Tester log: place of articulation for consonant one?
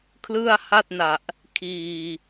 velar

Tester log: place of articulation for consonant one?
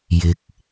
palatal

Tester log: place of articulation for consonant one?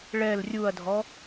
retroflex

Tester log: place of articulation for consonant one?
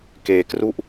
velar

